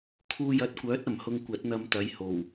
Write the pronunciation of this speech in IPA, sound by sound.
kʰ uː˧ j ɐ˨˥ t̚ kʷ œː˨˥ t̚ ɐ˨˩ m h ʊ˧ ŋ kʷ ɐ˨˥ t̚ n̪ ɐ˧ m t̪ ɐ˨˧ j h o˨˩ w

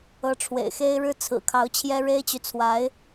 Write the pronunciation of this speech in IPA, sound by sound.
ɤ˧˥ ʈ͡ʂʰ w ḛ˨˩ ɪ̯ x e˥ ɪ̯ ɻ ɻ̩˥ t͡sʰ ɹ̩˨˩ kʰ ɑ˧˥ ʊ̯ t͡ɕʰ j ɛ˥ ɻ e˥ ɪ̯ t͡ɕ y˨ t͡sʰ w a˧˥ ɪ̯

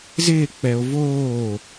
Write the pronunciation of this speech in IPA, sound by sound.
z ɪː k͡p ɛ o̯ v oː

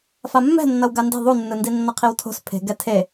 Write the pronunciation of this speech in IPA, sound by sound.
f a mː ɛ̤ nː ʌ w ɡ a n d e̤ ðˤ u nː ɯ n d i nː ʌ qʰ i w tʰ o̤ s pʰ e̤ ɡ ɛ tʰ e

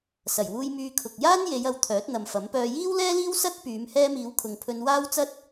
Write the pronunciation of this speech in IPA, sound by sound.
s ɐ˨˩ j w uː˧ j m yː˧ kʰ ʊ˨ k̚ j aː˥ n j e˨˧ j ɐ˨˧ w t̪ʰ œː˨˥ t̚ n̪ ɐ˨ m f ɐ˨˥ m p œː˧ j iː˥ w l ɛː˥ l iː˥ w s ɐ˥ t̚ p yː˨˧ m h ɛː˧ m iː˨˧ w kʰ ʊ˨ ŋ pʰ ɵ˧ n w aː˥ w t͡s ɐ˥ t̚

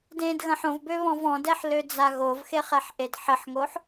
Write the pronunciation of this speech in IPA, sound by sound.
d ẽ d ɣ ɐ̃ ħ õ v b ø β ɔ̃ v ɔ̃ d ɛ ħ l ø d͡z a ɣ o v x e χ ɛ ħ ʔ e d ħ ə ħ ŋ o ħ

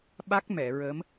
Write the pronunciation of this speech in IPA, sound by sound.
ɓ a˦˥ k̚ m ɛ˨˩˨ ɹ ə˧˥ m

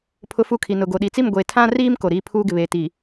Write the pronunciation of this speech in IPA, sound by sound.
pʰ ʊ˦ f u˦ kʰ i˨ n ʊ˨ ɡ o˨ ɗ i˨ t͡s i˦˨ m ɡʷ e˨ tʰ ã˦ r iː˦ m k o˨ ɾ iː˦ pʰ uː˦ ɡ ɪ˨ β eː˨ t i˨

